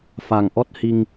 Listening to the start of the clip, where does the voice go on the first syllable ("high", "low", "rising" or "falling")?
low